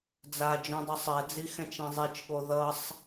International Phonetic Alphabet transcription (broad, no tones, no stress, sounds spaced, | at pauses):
d͡z a d͡ʒ ũ dˤ u sˤ ɛ d͡z i x ɛ̃ t͡ʃ ẽ zˤ i t͡ʃ ɠ o ð ʌ sˤ